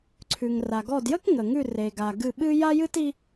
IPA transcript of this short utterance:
ǀʰ ʉ˨ ŋ r a˨ ɡ ɔ˦˨ d j ə˥ k ŋ ə˨ ŋ ʉ˦˨ r e˨ ɡ a˨ ɡ ɨ˦˨ ɓ ɨ˥ j a˥ j ɨ˥ t i˥

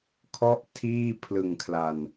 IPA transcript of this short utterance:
kʰ ɔ˥˩ ʔ tʰ iː˥˩ pʰ l ɯ˨˩ ŋ kʰ l a˨˩ n

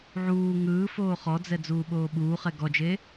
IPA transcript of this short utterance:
ʕ uː ŋ ɯː f oː χ ɔ d͡z ɛ d͡z uː ɓ oː ɓ uː χ ɛ ɡ ɔ d͡ʒ e

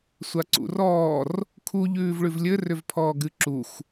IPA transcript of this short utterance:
sʷ a ǀ ṵ r ɔː r | kʰ u ʎ ʉː v ɭ ʉ v lʲ ɘ r ʏ v pʰ ɔː ɡ ɨ ǁ u x

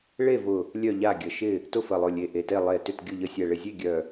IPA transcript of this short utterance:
ɭ e˥˨ v ʊ˧˩ | lʲ œ˥˨ ʎ a˥˨ ɡʲ ə˧˩ ʃ ɪ˥˨ | t ʊ˥˨ f ə˧˩ lˠ ʊ˧˩ lʲ e˧˩ ʔ e˧˩ t e˥˨ lˠ e˧˩ t ʏ˥˨ t ɡʲ ʊ˥˨ ʎ ə˧˩ sʲ ɛ˧˩ ɭ ɪ˧˩ zʲ e˥˨ ɡʲ œ˧˩

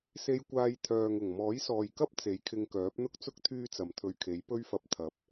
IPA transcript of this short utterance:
s e˧ j kʷ aː˧ j t̪ʰ œː˨ ŋ ʊ˨˩ ŋ m ɔː˨˥ j s ɔː˨ j k ɐ˥ p̚ t͡s e˨˥ j kʰ ɪ˧ ŋ k œː˨˥ p̚ n̪ ʊ˥ k̚ t͡s ʊ˥ k̚ t̪ʰ yː˥ t͡s ɐ˨ m t̪ʰ ɵ˧ ɥ kʰ e˨˥ j p ɵ˧ ɥ f ɐ˨ p̚ t̪ʰ ɐ˨˥ p̚

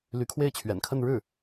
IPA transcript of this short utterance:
l y˧˥ kʰ w e˥˩ ɪ̯ t͡ɕʰ ɥ ɛ̰˨˩ n kʰ ə˥˧ n ɻ ɻ̩˥˩

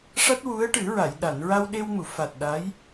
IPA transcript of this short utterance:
ʂ a˦˥ t̚ w u˧˥ ə̯ ʈ ɨ˨˩˦ ɹ a˨˩˨ j ɗ a˨˩˨ n ɹ a˧ w ɗ e˧ w m u˨˩˨ f a˨˩ t̚ ɗ a˧˥ j

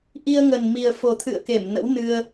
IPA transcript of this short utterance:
ʔ i˧ ə̯ ŋ ə˨˩ n m i˨˩ ə̯ f o˨˩ t̪ʰ ɨ̰˧˨ ə̯ k e˧˩ m n ə̰˧˥ w n ɨ˧ ə̯

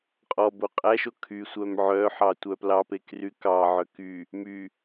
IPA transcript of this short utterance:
qʼ ɔ b o qʼ æ ʃ o kʰ y sʷ œ m ʕ œ ħ ɑ tʷ œ p l ɑ p e k r y k ɑ ʕ œ k y | m y

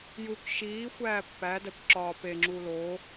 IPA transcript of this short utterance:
j u k ʃ iː xʷ æː pː æ d æ kʷ ǁ ɒː p e ŋ͡ǁ uː l o

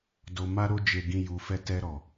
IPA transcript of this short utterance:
d o˧ m a˧ ɾ o˧ d͡ʒ e˨ ɡ ĩ˨ j u˨ f ɛ˧ t ɛ˧ ɾ ɔ˨

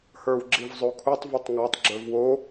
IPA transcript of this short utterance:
h ə˞ w ɡ͡ǁ i v zˤ o kʰ u tˤ v o tˤ ŋ a tˤ ɡ͡ǁ ə˞ v w o

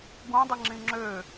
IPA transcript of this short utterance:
ɡ ũ dˤ ɨ ŋ͡ǁ ĩ ŋ͡ǁ ø

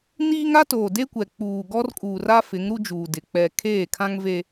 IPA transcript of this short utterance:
n iː˦ ŋ a˦ t oː˨ d e˦ kʷ ɛ˨ k͡p uː˨ ɡ ɔ˦ r kʼ uː˨ r a˦ f ɪ˨˦ ŋ ɾ u˦ d͡ʒ uː˨ d ɪ˨ k͡p ɛ˨ kʰ eː˦˨ kʰ ã˦ ŋ v e˦

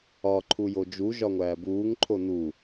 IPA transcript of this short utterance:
ɒ ǃʰ u j o d͡ʒ u ʒ ɒ ŋʷ æː b uː ŋ ǃʰ o n u

